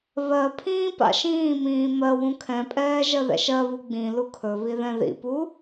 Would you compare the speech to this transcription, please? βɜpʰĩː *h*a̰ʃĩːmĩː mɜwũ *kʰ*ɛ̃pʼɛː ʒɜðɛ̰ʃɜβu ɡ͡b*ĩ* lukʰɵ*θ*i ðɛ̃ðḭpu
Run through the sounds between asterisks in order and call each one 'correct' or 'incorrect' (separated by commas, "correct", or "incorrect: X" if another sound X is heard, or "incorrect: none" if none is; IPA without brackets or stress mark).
incorrect: p, correct, correct, incorrect: β